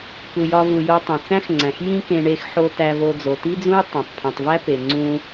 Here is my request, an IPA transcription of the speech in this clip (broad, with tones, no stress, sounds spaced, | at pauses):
k u˧ j ɒ˥ v u˧ j o˧ tˤ ẽ˩ t͡s æ̃˥ x ŋ͡ǀ æ̃˩ x j ĩ˥ k ẽ˧ ɳ e˧ x ħ o˧ t æ˧ v o˧ d͡z o˩ t i˥ d͡z ũ˥ j tˤ æ̃˩ tˤ pʰ ũ˩ tˤ v æ˥ p e˩ ŋ͡ǀ ũ˧